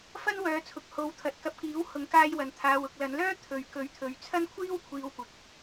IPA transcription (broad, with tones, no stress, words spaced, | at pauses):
fɐ˥nwœː˨˧t͡sʰʊ˨k̚ ho˨˧wt̪ʰɐ˨˥t̚ kɐ˧p̚kiː˨˥w hʊ˨˥ŋkaː˧j wɐ˨nt̪ʰaː˧w ʊ˨k̚lɐ˨˧nlœː˥ t̪ʰɵ˨ɥ kɵ˨˥ɥt̪ʰɵ˨ɥt͡sʰɐ˥n kʷʰiː˥wkʷʰiː˧wkʷɪ˨k̚